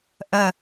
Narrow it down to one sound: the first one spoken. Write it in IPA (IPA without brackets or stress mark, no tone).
ʔ